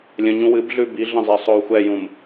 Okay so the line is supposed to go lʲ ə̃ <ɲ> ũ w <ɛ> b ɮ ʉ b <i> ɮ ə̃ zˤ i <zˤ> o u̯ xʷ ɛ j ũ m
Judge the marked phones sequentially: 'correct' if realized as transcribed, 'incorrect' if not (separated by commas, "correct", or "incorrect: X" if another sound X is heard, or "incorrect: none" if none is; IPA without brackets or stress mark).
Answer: correct, incorrect: ɨ, correct, incorrect: sˤ